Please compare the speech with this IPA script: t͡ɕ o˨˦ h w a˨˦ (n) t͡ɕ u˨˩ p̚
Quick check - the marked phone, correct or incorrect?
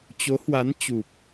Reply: correct